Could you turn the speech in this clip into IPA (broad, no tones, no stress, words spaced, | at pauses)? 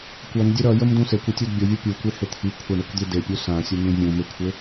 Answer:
kʷʌndʲe ɾʌjəmdũ sekʷitʲud bʲʌvʲo pʲukʷehɪ t̪ʰikʷʰaɳekʷd̪i depʲu sãsʲən̪ĩ vʲũ mɪkʷʰɪ